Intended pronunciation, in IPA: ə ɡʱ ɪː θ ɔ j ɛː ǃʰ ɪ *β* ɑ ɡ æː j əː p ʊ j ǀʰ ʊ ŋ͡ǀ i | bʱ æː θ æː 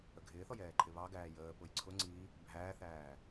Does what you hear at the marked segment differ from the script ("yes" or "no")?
no